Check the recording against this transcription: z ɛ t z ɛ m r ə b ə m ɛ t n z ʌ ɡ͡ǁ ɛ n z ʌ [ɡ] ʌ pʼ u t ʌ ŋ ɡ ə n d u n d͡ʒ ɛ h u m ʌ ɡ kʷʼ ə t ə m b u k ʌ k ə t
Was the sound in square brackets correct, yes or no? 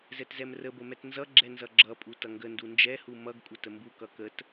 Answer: no